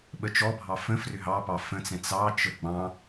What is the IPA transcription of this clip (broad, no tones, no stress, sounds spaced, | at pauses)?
ɓ ə t͡ʃ ɔ bʱ ɑ f ə̃ f r ʏ ɦ ɑ p ɑ f ə̃ t͡s ɛ̃ t͡s ɑ t͡ʃ ə ɡ͡b ɑ̃